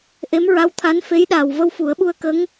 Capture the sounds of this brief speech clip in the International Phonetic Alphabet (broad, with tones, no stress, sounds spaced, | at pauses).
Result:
ʔ e˧˥ m ɹ a˧˥ w t̪ʰ a˧˥ n f e˧˥ j ɗ aː˨˩ w v ə˧ w f u˨˩˦ ə̯ ɓ u˧ ə̯ k ə˧˥ ŋ